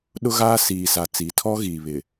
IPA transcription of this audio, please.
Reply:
ɗ ʊ˦ ɣ aː˦ s iː˨ s a˨ t͡s i˨˦ tʰ ɔ˦ ɣ iː˨ β ɪ˨

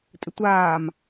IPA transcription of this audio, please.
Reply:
tʼ ɪ tʷ aː m

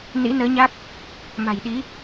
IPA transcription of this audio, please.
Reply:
n ḭ˧˥ n əː˨˦ ɲ a˦˥ k̚ | m a̤˨˩ j ɗ i˨˦

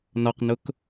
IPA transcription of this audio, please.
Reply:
n ɒ q n ʊ k

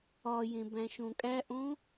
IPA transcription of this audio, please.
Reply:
ɒ j ẽ b æ̃ ʃ õ kʼ æ ʔ õ

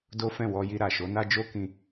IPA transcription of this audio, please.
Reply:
d o˦ f ɛ̃˦˨ w ɔ˧ j i˧ ɾ a˨ ʃ o˨˦ n a˦ d͡ʒ o˦ k ĩ˧

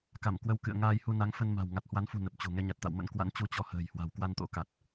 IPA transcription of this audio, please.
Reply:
k a˧˩ m k w ə˧ w k ɨ̰˧˨ ə̯ ŋ aː˧ j h u˧ n a˨˦ ŋ f ə˧ n m a̤˨˩ w ŋ a˨˩ t̚ h w a˨˦ n f ṳ˨˩ n ə˨˩ p̚ t͡ɕ o̤˨˩ ŋ ɛ˧ ɲ a˨˩ t̚ t̪ a̰˧˨ w m ə̰˧˥ n k w a̰˧˥ n t͡ɕ u˧ t͡ɕ ɔ˧ h ə̤ː˨˩ j h w a̤˨˩ w k w a˧ n t̪ o̰˧˥ k a˨˩ t̚

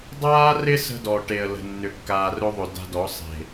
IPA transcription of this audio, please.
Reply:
dˤ aː˦ r ɪ˦ s ə̤˦ d ɔ˨ ʈ e˨ ə̯ l ə̤˨ nː ʏ˨ kː aː˨ r ɵ˦ ðˤ ɵ˨ d a̤˦ d ɔ˨˦ sˤ e̤˨

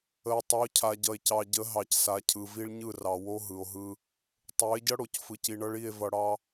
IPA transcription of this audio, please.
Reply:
ə˨ e̯ tˤ ʌ˨˦ o̯ cʰ a˨ ɟ ʌ˨ e̯ c ɑ˨ ɟ ə˨˦ ɦ ɑ˨ c s a˨ cʰ ɯ˨ v i˦ ɭ ɲ ɯ˦˨ r ɑ˨ w o˦ ɦ ɯ˨ o̯ ɦ ɯ˦ | tˤ o˨˦ e̯ ɟ ʌ˦ ɽ o˨ c f ɯ˨ c i˨ ɳ ʌ˦ ɭ i˦˨ e̯ v ʌ˨ ɽ ɑ˦

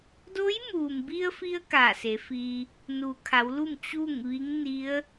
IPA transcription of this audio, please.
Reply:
d o˧˥ j m uː˩ m b i˧ ə̯ f i˧ ə̯ k aː˧˩ s e˩˧ f iː˧ | n u˩ kʰ a˩˧ w l u˥˨ m t͡ɕ uː˥˨ ŋ ʋ i˧˥ ŋ n i˧˥ ə̯

